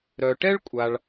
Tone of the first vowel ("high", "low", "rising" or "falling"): low